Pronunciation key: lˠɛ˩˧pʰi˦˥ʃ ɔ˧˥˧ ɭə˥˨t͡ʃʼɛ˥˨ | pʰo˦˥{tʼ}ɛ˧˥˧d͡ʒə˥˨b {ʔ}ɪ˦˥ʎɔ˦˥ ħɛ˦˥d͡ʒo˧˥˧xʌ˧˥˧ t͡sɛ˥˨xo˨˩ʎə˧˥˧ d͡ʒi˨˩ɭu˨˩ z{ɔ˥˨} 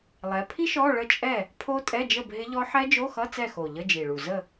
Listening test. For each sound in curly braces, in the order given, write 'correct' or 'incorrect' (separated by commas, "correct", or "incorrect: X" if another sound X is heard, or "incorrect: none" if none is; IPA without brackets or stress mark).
correct, incorrect: ɦ, incorrect: ə˥˨